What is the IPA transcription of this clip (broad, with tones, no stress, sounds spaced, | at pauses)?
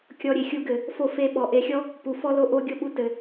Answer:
kʲ ɔ˧ ɾʲ e˨ xʲ u˧ ɡ ɘ˨ | f o˧ f e˧ ɓ ɔ˨ ʔ e˧ xʲ ɔ˦ | p u˨ f ɔ˦ l o˧ ʔ o˦ ɡʲ o˦ ɓ u˧ t ɘ˨